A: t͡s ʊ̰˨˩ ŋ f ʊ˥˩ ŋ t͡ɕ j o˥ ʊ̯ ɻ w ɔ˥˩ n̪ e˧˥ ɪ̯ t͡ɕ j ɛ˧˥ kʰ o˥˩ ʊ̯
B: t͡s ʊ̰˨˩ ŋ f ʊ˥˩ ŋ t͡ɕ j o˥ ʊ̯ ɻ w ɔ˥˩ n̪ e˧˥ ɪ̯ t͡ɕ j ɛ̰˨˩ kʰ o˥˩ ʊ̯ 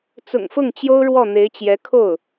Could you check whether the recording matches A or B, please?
A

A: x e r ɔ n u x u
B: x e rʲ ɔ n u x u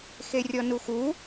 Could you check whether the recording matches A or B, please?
B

